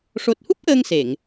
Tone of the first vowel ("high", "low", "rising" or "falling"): low